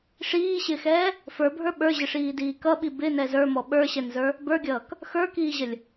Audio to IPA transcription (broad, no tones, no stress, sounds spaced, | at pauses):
ʂ iː ɕ ɪː x ɛː | f ə˞ bʱ ə˞ ɓ ə˞ ʑ ɪ ʂ iː d iː k ʌ ɓ i b ɪ n ɛ z ə˞ m ɔ ɓ ə˞ ɕ ɛ n z ə˞ | b ə˞ ɡʲ ʌː k | x ə˞ k iː ʑ ə lʲ